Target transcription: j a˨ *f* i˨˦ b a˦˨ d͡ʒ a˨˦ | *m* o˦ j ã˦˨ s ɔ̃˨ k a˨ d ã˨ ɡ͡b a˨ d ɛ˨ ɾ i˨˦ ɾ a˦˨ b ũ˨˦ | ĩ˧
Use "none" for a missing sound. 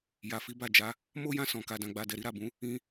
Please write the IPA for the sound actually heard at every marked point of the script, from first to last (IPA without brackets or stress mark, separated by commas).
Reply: f, m